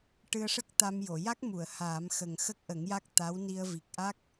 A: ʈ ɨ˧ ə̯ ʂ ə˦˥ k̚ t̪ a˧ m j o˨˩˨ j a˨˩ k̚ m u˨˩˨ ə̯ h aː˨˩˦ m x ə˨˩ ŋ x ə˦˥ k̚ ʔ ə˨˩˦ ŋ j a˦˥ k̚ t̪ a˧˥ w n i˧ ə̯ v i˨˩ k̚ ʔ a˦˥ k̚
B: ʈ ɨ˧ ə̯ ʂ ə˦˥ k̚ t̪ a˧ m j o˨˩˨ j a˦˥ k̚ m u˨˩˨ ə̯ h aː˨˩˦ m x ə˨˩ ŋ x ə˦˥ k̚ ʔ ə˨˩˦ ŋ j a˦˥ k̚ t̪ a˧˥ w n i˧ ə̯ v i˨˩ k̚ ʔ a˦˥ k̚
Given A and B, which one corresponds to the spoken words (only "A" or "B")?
B